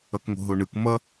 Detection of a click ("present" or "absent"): absent